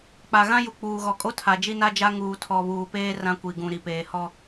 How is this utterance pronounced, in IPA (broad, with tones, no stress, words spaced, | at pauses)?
k͡pa˨ɣã˦ju˨ k͡puː˨ɣɔ˨kʼo˦ tʰa˨d͡ʒi˦na˦d͡ʒa˦ ŋuː˨tʰɔ˨βuː˨peː˦ rã˦kʷi˨ɡũ˨ɾi˨ peː˨hɔ˦